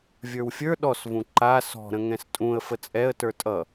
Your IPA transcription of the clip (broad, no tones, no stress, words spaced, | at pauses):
vʲə˞wfʲə˞ ɗɔsvũ ǃa sɔ̤ɾə̃ ŋɛ̃stʼũə̯ fət͡sʼɛə̯ tə˞tʼʌ